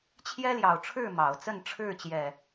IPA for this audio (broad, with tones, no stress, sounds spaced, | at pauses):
t͡ɕʰ j ɛ˦ l j ɑ˨˩ ʊ̯ ʈ͡ʂʰ ɻ̩˥˨ m ɑ˨˦ ʊ̯ t͡s ə˥˨ n ʈ͡ʂʰ ɻ̩˥˨ t͡ɕ j ɛ˨˩